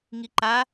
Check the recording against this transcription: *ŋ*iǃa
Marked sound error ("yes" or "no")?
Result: no